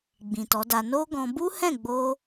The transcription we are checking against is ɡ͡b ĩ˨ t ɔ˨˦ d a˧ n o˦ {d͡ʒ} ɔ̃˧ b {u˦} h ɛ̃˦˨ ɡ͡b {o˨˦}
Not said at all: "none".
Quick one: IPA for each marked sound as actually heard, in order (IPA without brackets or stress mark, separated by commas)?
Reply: ɡ, u˦, o˧